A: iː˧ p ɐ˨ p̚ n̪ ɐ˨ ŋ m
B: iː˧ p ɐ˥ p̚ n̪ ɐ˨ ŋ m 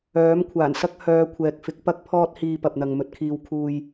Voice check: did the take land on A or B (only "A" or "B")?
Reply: A